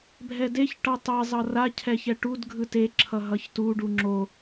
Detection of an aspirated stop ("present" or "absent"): present